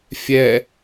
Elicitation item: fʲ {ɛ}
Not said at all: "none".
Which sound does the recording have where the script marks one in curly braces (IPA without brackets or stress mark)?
ɛ